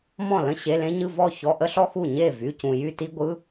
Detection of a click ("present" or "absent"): absent